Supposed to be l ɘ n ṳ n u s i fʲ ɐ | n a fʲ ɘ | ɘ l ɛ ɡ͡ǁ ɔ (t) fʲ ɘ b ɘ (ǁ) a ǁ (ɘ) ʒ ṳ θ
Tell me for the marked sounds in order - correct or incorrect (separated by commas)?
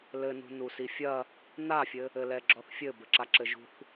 incorrect, correct, correct